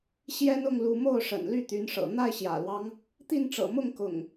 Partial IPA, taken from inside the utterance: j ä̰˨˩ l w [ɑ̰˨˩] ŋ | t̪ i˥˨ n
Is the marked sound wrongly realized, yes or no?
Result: yes